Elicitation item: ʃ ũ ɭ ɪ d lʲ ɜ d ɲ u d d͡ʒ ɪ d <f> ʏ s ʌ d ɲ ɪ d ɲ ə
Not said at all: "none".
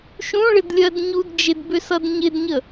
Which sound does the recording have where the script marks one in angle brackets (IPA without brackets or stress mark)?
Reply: b